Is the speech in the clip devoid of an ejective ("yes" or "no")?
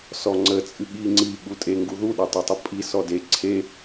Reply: no